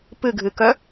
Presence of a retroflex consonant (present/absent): absent